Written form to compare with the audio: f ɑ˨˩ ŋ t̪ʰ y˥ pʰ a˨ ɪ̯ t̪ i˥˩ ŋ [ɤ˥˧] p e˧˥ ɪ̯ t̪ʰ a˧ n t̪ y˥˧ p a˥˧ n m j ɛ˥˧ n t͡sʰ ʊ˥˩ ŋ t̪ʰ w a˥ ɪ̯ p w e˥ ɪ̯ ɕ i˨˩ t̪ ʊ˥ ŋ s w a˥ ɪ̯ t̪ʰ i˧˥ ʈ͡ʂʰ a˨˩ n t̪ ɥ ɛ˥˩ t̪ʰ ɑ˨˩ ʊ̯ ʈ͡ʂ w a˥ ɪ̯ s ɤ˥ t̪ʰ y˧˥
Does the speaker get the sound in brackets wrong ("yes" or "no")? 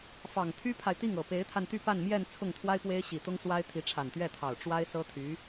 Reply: yes